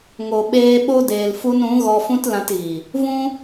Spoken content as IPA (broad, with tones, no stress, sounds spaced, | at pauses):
ŋ o˨ ɓ eː˧ ɓ o˦ d eː˨ l f u˧ n ũ˨˦ ɣ ɔ˧ f ũ˦ t l ã˧ t ɣ i˨ | v ũ˦